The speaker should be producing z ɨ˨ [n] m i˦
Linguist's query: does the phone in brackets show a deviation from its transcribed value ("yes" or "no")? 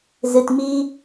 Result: yes